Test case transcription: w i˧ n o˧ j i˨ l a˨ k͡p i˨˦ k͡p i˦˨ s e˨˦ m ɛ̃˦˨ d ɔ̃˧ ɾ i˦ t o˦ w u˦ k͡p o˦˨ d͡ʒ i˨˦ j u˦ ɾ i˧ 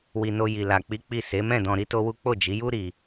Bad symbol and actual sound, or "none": none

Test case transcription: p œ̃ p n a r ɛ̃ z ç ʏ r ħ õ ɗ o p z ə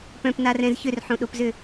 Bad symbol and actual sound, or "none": ə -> ʏ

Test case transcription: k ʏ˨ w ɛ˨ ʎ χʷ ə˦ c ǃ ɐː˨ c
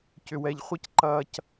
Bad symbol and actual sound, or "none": k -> c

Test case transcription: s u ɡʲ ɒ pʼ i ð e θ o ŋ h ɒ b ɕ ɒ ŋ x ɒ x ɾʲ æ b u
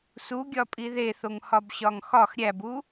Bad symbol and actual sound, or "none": none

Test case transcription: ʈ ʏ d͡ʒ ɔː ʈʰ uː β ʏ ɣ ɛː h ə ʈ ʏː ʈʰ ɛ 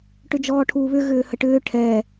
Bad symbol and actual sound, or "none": ɛː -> ʏː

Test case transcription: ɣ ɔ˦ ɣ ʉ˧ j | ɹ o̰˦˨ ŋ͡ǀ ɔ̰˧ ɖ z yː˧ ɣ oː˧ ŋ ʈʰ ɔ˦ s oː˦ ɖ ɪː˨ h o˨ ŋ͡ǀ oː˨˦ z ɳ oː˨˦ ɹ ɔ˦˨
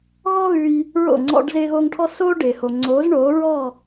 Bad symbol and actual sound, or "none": yː˧ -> ɪː˧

